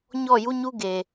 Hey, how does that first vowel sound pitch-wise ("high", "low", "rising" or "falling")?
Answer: falling